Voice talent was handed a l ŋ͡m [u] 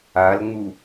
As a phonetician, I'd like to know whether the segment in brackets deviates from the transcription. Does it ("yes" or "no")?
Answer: no